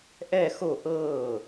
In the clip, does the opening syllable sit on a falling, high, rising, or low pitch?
falling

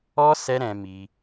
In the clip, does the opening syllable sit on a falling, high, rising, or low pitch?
high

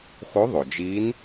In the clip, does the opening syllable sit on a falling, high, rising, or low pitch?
rising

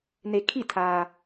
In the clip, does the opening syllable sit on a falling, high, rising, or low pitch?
low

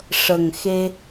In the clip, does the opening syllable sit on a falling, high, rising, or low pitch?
low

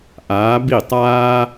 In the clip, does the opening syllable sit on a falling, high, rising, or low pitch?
rising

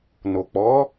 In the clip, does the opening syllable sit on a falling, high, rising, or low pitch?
low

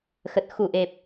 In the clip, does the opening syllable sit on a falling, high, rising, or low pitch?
low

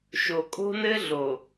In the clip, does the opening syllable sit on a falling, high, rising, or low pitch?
low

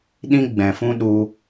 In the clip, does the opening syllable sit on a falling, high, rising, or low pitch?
high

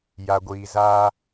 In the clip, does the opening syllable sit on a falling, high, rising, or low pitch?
low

